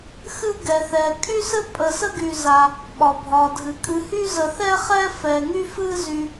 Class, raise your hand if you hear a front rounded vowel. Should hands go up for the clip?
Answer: yes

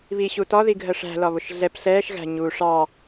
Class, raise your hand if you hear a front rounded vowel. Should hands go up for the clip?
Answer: no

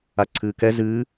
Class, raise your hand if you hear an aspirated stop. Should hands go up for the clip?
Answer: yes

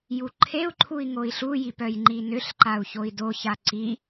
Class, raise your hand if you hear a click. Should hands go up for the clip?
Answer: yes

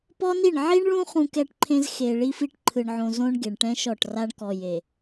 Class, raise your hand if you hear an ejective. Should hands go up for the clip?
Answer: no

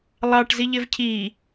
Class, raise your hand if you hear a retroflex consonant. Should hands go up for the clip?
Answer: yes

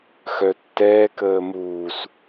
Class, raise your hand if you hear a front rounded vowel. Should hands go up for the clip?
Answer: yes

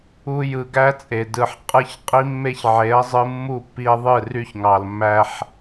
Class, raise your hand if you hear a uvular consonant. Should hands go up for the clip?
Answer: yes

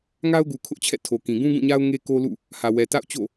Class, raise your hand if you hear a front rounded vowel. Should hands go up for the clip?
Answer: no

